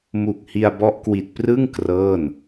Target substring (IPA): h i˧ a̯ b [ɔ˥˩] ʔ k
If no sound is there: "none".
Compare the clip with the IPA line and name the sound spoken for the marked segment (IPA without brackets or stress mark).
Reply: ɔ˦˥